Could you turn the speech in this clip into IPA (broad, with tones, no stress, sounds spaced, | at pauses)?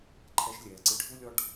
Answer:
ǃʰ ɛ˧ ʃ lʲ ɛː˨ ǀ ɨ˧ ɖʱ u˦ lʲ ɔ˦ ɖ